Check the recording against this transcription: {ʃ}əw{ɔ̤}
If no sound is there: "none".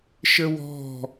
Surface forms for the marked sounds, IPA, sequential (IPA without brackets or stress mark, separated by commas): ʃ, ɔ̤